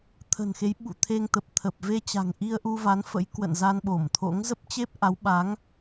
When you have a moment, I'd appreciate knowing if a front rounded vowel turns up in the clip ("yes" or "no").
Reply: no